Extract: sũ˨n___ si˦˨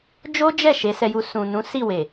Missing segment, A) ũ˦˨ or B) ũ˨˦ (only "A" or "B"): B